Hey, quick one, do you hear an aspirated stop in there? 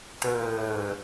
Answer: no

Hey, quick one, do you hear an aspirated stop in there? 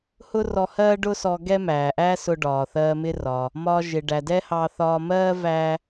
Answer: no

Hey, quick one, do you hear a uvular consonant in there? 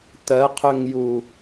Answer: yes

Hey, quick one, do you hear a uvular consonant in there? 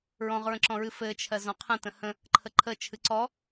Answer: yes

